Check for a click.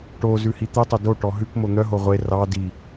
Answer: absent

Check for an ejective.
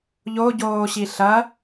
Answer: absent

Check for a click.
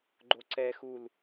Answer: present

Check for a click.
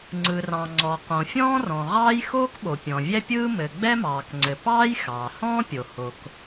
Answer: present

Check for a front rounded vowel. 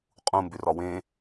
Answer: present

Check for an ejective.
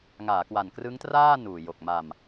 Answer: absent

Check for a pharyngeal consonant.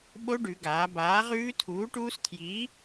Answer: absent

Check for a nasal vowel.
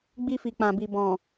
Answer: present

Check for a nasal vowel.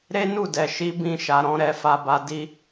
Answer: present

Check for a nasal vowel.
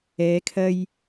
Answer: absent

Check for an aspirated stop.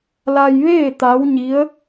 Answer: absent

